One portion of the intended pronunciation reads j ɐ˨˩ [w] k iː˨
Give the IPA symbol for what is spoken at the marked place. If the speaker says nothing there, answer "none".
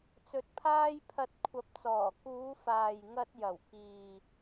w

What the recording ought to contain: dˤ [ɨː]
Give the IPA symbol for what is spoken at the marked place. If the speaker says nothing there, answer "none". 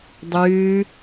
ɨː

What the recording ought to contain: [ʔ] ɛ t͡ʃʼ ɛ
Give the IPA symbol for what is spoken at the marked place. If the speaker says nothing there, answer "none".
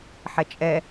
ħ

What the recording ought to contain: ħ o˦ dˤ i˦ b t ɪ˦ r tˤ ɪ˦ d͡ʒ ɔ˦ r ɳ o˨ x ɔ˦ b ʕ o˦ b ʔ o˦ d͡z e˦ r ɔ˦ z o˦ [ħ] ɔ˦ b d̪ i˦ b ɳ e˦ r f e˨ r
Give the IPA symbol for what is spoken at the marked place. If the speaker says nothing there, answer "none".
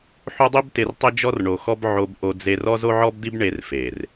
ʕ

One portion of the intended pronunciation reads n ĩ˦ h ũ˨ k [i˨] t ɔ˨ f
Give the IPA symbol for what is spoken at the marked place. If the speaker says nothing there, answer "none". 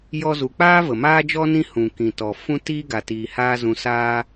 ĩ˨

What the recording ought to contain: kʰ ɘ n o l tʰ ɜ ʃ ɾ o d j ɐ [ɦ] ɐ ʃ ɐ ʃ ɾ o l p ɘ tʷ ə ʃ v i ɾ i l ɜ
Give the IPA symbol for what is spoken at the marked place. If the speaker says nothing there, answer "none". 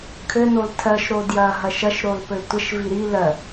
ɦ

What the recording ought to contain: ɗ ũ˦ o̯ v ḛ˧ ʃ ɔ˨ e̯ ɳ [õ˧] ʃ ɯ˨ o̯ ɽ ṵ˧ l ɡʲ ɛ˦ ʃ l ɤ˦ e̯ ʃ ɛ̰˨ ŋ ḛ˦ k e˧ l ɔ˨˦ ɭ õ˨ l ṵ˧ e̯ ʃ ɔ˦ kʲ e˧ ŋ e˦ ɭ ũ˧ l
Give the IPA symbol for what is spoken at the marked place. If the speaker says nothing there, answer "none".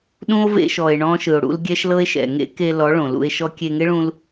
ɔ̃˧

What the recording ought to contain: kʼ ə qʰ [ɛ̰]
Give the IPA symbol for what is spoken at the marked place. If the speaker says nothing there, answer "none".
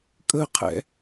ɛ̰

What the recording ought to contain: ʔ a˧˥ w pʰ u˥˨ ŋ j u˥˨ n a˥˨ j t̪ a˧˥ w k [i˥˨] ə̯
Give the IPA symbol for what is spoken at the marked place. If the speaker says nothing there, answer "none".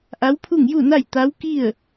i˥˨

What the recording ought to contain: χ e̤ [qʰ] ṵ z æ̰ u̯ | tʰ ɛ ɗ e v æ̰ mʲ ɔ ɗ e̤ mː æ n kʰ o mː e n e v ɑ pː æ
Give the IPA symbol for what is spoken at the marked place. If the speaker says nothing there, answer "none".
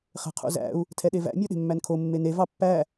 qʰ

